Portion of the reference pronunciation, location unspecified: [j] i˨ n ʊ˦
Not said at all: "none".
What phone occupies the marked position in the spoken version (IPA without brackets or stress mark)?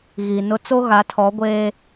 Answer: ɣ